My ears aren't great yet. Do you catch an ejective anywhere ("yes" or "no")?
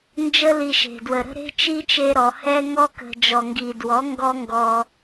no